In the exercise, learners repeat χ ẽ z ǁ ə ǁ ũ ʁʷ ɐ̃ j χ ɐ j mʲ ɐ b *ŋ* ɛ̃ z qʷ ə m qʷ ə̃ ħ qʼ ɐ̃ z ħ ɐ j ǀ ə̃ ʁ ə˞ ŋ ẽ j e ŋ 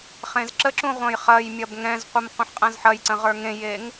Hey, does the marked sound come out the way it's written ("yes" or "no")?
yes